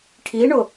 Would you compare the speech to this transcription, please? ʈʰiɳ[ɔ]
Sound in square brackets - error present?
yes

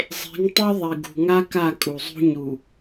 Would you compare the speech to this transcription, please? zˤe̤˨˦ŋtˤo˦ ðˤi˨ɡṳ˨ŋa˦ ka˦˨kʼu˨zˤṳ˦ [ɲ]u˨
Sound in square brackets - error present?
no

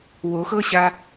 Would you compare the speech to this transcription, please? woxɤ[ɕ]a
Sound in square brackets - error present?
no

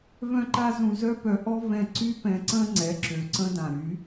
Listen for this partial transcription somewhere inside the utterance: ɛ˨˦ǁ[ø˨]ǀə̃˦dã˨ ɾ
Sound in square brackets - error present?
no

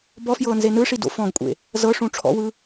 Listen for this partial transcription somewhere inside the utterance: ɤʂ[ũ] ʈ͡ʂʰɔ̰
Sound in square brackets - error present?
no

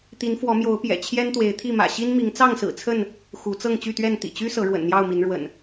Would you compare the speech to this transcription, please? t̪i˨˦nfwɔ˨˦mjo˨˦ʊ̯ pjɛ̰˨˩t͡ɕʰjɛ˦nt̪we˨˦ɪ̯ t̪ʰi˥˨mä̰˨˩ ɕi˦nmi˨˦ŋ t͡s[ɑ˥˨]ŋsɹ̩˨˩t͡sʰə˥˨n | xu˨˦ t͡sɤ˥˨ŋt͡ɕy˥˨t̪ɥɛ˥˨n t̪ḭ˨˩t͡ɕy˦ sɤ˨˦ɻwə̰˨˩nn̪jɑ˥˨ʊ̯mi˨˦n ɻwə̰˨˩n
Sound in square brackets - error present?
no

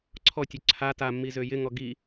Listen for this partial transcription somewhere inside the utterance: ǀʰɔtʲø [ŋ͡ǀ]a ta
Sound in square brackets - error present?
yes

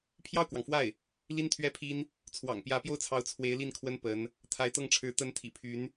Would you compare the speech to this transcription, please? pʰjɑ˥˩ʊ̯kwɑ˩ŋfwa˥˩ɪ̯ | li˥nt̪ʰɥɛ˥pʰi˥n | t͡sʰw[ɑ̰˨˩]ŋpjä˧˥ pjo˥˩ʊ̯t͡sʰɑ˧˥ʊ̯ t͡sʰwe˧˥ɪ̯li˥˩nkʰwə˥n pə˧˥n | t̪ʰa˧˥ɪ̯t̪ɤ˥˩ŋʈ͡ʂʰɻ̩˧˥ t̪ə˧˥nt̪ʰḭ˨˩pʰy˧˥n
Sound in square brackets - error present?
no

